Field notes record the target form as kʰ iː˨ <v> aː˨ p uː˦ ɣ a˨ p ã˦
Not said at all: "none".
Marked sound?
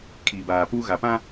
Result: b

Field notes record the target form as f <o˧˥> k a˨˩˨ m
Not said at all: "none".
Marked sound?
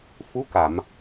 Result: u˧˥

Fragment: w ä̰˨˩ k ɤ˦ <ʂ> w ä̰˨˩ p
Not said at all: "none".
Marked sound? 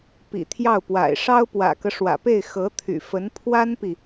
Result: ʂ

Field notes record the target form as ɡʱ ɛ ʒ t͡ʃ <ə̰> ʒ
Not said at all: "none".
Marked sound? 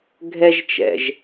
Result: ɛ̰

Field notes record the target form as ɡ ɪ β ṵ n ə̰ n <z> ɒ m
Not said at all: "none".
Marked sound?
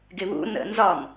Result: z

